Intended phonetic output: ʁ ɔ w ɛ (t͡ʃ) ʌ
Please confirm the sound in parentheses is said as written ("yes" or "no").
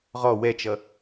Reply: yes